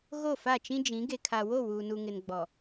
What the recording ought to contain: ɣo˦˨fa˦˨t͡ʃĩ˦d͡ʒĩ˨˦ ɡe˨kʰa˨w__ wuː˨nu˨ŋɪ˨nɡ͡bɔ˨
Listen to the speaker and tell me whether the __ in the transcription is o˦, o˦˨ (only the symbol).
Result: o˦˨